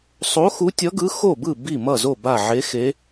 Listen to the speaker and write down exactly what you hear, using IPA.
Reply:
sˤo˧˥xu˧˥tʲʌ˧˥ɡɯ˧˥ xo˥˨bɯ˥˨ bi˥˨mʌ˥˨zo˥˨ ba˥˨ ʕe˧˥xe˧˥

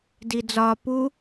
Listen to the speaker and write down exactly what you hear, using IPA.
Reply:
did͡zɒ pu

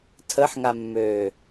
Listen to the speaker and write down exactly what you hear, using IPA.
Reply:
tʰəħŋamːøː

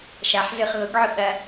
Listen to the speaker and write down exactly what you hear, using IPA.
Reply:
ʃaħzɯχ ɣʊɡʕʊ ɓɐ

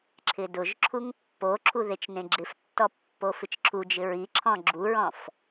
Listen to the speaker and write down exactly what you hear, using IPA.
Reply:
ǁʰɪdʊʒǁʰuŋ pːoǁʰu ðet͡ʃnẽɡ͡ǁɪftːɔ pːofɪt͡ʃǁʰud͡ʒɪ ɹiǁʰɔ̃ ɡ͡ǁuɹɔ̃f

